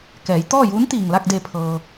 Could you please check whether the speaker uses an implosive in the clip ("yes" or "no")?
no